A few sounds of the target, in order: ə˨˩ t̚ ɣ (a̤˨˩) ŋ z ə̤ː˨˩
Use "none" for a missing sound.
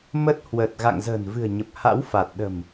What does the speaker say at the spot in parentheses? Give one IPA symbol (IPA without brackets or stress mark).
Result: a̰˧˨